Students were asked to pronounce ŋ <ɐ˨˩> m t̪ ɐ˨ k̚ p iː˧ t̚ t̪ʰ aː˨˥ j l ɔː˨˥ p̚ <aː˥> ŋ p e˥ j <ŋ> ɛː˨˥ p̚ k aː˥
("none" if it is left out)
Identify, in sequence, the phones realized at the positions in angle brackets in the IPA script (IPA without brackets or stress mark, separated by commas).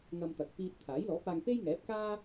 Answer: ɐ˧, aː˧, ŋ